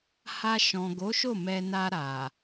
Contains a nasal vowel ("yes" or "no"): yes